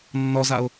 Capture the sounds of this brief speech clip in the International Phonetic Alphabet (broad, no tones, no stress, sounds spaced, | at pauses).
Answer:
nː ɔ z a ʊ̯